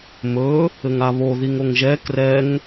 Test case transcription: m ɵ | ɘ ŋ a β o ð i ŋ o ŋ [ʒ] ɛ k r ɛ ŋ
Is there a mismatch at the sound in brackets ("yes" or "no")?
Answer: no